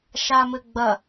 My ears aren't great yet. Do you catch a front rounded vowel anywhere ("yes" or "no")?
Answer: no